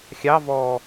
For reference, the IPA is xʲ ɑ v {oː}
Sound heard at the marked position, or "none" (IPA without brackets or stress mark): ɔː